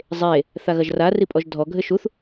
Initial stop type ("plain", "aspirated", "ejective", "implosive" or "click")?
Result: ejective